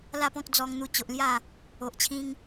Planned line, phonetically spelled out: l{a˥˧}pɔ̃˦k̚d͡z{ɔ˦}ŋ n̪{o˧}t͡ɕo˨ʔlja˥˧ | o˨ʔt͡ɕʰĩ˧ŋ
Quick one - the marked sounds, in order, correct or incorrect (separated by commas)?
correct, incorrect, incorrect